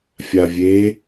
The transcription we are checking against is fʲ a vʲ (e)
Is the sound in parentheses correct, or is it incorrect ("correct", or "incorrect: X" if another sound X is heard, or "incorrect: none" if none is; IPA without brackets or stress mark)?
correct